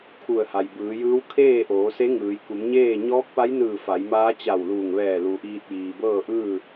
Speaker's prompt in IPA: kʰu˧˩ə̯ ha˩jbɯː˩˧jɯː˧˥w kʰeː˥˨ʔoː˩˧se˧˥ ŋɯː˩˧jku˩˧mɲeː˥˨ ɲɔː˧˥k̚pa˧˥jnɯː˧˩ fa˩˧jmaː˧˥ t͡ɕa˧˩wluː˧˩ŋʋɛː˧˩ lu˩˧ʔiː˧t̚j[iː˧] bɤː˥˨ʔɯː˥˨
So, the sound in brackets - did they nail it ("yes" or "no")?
no